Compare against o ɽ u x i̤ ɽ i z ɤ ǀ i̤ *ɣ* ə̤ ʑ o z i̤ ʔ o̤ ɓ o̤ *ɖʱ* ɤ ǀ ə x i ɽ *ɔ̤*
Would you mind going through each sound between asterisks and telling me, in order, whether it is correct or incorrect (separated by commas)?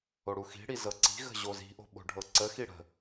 correct, correct, incorrect